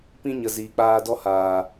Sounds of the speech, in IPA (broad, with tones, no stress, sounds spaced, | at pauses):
p ĩ˦ ɲ ə˨ z iː˨ k͡p aː˧ d ɔ˦ h aː˨